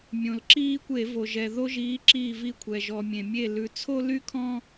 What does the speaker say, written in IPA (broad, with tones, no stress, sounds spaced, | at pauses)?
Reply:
mʲ õ˩ l ǁ iː˦ kʷ e˧˩˧ v o˩ ʒ ɛ˩ ð o˦ ʒ iː˨˥ ǁ iː˧˩ v i˧˩ kʷʰ ɛ˩ ʒ ɔ˩ mʲ ẽ˩ mʲ e˧˩ l ʉ˩ t͡sʰ o˦ l y˦ kʰ ɔ̃˦